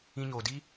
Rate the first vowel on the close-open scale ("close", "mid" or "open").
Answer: close